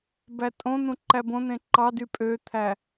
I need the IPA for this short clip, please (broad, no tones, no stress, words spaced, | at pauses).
bætʼõn̪ũ ǃæbõn̪ẽ ǃɑdy pʼøt̪ʰæ